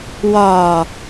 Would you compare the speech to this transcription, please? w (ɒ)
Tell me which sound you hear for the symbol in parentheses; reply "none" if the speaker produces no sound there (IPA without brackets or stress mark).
ɒ